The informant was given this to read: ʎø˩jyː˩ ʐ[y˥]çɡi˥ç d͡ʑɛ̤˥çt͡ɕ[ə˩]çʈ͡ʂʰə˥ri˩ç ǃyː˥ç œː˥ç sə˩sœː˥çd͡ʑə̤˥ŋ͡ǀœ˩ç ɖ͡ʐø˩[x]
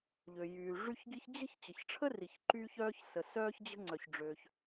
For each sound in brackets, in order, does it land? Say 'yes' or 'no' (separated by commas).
yes, yes, no